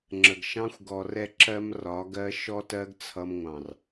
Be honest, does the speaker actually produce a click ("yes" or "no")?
yes